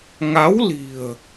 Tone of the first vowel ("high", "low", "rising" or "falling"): rising